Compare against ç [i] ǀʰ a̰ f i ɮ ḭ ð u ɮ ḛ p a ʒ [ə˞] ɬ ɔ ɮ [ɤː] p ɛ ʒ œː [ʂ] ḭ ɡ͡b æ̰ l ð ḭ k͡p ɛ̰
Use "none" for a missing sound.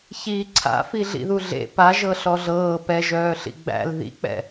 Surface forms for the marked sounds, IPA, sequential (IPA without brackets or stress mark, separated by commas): iː, ɤ, ɤː, ɬ